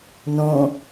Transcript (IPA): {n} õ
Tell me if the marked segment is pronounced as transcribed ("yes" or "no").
yes